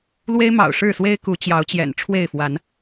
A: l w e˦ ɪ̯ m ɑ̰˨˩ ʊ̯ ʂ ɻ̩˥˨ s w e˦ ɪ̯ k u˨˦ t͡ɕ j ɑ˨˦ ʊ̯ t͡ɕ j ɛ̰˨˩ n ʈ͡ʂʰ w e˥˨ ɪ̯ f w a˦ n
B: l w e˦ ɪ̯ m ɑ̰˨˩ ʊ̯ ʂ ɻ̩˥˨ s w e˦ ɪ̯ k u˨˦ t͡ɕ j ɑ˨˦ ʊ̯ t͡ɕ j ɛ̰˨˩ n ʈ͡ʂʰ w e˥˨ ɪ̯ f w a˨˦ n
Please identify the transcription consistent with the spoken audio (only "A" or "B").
B